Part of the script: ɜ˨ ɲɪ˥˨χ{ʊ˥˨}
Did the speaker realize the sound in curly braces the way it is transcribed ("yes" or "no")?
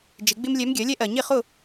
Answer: yes